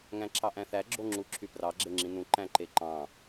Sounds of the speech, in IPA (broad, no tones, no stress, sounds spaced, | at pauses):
ŋ æ̃ ǁʰ ɑ ʔ æ̃ θ æ ɡ͡ǁ o ŋ͡ǁ u ǁʰ y p r ɑ ɡ͡ǁ e ŋ͡ǁ ĩ n ũ ǃ æ̃ ǃ e ǃ ɑ̃